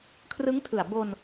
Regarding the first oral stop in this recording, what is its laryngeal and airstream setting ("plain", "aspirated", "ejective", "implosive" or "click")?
aspirated